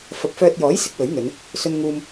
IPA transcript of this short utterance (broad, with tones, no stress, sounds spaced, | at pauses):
f ɐ˨˥ p̚ f œː˧ t̚ j ɔː˨˥ j s ɪ˨˥ k̚ w ɵ˨˥ ɥ n̪ ɵ˨˧ n | s ɵ˧ n ŋ uː˧ m